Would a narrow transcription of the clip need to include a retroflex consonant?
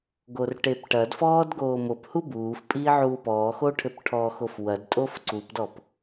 yes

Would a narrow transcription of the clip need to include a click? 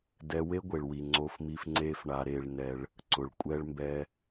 yes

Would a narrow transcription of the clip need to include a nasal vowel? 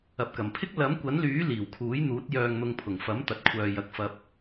no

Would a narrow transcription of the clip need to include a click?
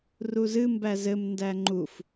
yes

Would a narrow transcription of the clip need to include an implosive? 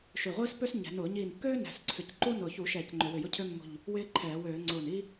no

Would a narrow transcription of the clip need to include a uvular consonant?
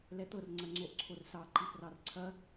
no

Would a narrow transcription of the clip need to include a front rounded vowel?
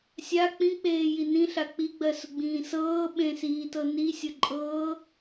no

